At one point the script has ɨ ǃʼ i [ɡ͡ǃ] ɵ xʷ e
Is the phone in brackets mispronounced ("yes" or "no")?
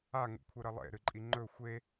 yes